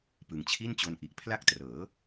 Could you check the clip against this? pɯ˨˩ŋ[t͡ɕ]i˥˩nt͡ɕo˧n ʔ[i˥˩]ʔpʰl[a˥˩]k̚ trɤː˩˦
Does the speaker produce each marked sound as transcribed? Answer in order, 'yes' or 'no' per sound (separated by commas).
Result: no, no, yes